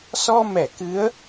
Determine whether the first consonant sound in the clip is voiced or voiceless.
voiceless